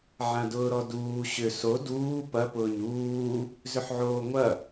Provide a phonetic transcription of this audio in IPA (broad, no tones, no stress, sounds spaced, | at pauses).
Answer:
ʕ ã d ʊː ɾ ɔ d uː ɕ ʏ s o d uː p ɐ p ʊː ɲ uː | z ʏ ħ ʕ oː ŋʷ ɐ